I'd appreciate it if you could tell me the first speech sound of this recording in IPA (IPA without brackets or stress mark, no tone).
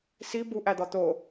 s